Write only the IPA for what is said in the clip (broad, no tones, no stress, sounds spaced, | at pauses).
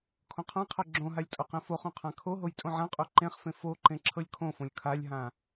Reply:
kʰ õ qʰ ã qʰ ɤ ɡ͡ǁ õ ɦ a lʲ tʼ o q ẽ f o χ õ qʰ ã kʰ o ɦ o j tʼ õ ʕ ã qʼ o ǃ ẽ χ f ẽ f o ǃ ẽ ǁʰ ɤ lʲ kʰ õ f õ lʲ kʰ a lʲ ɦ ã